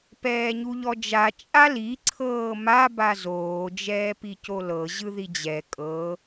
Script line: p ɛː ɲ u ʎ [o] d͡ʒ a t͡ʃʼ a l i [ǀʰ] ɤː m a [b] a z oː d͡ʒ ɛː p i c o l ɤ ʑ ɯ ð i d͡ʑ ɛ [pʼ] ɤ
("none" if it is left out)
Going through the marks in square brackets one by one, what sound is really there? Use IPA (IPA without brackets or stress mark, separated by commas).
ɔ, ǀʰ, b, kʼ